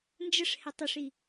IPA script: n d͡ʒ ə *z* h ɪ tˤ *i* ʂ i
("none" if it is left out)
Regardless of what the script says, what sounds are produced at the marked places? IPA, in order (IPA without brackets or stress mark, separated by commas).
ʂ, ɪ